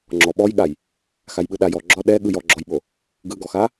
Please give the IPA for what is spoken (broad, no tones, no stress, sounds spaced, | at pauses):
ŋ͡ǁ ɔ ɓ ɔ j ɠ a j | x a j ɓ ɯ ɗ a j ɔ ɡ͡ǁ ɔ ɗ ɛ ɠ ɯ j ɔ ɡ͡ǁ ɔ j ɓ o | ɡ ɯ ɡ ɔ x a